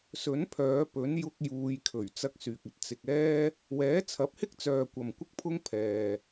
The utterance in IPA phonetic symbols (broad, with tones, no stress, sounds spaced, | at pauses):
s ɵ˨˥ n pʰ œː˨˧ p ɵ˨˥ n j ʊ˥ k̚ j uː˧ j kʰ ɵ˨˩ ɥ t͡s ɐ˧ k̚ s yː˨ k̚ ɐ˨ t̚ t͡s ɪ˨ k̚ ɛː˥ | w ɛː˨˥ t͡sʰ ɐ˨˥ p̚ h ɪ˥ k̚ t͡s œː˨ kʷ ɐ˨ m kʷ ɪ˥ k̚ pʰ ʊ˥ ŋ pʰ ɛː˨